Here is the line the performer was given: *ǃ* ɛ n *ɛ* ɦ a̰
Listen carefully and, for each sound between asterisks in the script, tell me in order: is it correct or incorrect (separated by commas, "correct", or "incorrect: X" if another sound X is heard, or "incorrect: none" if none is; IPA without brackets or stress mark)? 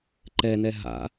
correct, correct